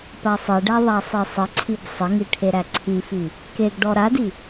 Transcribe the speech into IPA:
pasˤeɖæ ðˤasˤesˤəǀʰib sˤəŋi ʈʰeɾæǀʰifi | keɡɖɔ ɾadi

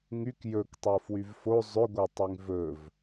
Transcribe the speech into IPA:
ŋyk jɵktˤo fwyvfo zˤʏɡʷɛ tˤyŋvɵv

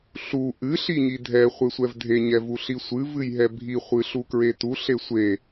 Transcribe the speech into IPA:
ɬu ʔɨ ɬiɲidʱɛ χʷesʷɛvdʱe ɲɛvuɬisʷɨ vɨjɦɛbʱi χʷɨɬukɹetu ɬesʷe

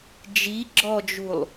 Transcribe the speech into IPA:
d͡ʒi ɡ͡ǁɔd͡ʒulˠ

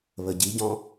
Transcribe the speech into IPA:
βəɟiɟɔ̃

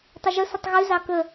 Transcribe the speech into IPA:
tˤɛʒəsətˤ ɣʉzɑ kə

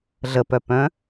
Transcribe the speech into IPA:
ɮəpœpœ̃

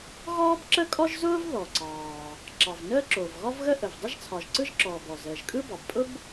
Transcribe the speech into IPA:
ɣɔː˥bǁə˥kʼɔ˥ʒ zʊː˥v ðɔ˩ǀɑː˩ | ǁɑ˩v nəː˥ǁoː˩v ɣɒ˥vɣə˥ ʔə˩v dˤə˥ʒt͡sʰɒ˩ʒǀɯ˥ʒǁɔː˩ bɔ˩zəː˩ʒkʼɯ˥bɑ˩b pʼʊ˥b

